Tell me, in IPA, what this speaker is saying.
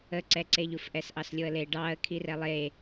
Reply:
əǀɛǀeʎuf ʔɛsʔɑslʲoə̯le ɖɑə̯ kʰirɛlˠe

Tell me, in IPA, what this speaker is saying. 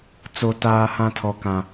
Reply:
t͡so˦taː˦hã˦ tʰɔ˦kã˦

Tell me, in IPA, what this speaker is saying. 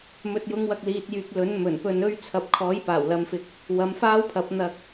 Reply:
mɵ˨t̚jʊ˨˧ŋwɐ˨k̚ liː˨t̚jyː˨k̚ lɵ˨˥nmɵ˨˩npɵ˧nɵ˥ɥ t͡sʰɐ˨p̚kʰɔː˨˥j paː˨˩wlɐ˨˧mfɪ˨˥k̚ | wɐ˨˧mfaː˥wpʰɐ˨˥p̚ n̪ɐ˧k̚

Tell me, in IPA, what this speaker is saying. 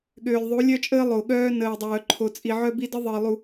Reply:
ɠøː˨lʲðˤu˨˦lʲœ˦t͡ʃʼəː˦ lˠo˨ɠœː˦ nəː˨dˤœː˨ǃʰo˨t͡sʼi˨ ʕœ˦bi˦də˦ ðˤəː˨lˠu˨

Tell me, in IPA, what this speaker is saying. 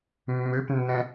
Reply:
mːøpnːɛ̃

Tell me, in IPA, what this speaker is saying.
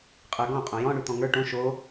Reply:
qʼə˞ɡɔ̃ qʼõjɔ̃ ɳʉt̪ɔ̃ŋə˞ ʈõ ʃo

